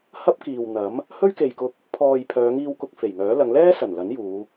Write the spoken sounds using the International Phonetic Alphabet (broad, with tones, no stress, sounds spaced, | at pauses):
h ɐ˥ p̚ k iː˨ w n̪ ɐ˨˥ m | h ɵ˥ ɥ k e˨ j k ʊ˧ k̚ | pʰ ɔː˨ j pʰ œː˨˧ ŋ iː˧ w k ʊ˧ k̚ f e˨˩ j ŋ œː˨˥ l ɐ˨˧ ŋ l ɛː˥ s ɐ˨˩ n l ɐ˨˥ n j uː˨˧